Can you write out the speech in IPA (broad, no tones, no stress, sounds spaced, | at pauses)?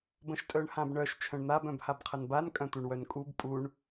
b ə̃ ʃ tʼ œ ɳ h ã b ɳ œ ʃ t͡ʃʰ œ̃ ɳ n̪ a b œ̃ b h a b qʰ ə n b a n kʼ œ̃ t̪ u ɳ w œ n kʼ u b pʼ u ɳ